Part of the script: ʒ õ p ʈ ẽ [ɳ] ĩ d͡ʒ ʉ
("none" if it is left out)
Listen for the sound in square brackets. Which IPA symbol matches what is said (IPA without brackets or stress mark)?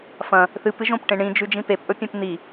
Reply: ɳ